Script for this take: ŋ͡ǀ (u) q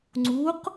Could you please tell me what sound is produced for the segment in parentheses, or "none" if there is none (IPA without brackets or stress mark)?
u